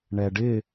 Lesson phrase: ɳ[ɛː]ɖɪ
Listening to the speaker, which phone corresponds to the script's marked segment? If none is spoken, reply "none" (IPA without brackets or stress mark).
ɛ